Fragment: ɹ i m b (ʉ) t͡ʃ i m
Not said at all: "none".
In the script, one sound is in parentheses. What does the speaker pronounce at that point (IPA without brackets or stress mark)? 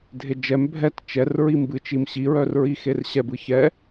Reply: ɨ